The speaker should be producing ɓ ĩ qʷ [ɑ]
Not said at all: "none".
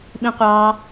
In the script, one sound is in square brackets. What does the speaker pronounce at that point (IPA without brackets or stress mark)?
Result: ɑ